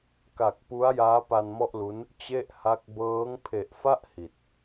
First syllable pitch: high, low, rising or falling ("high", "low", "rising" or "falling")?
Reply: low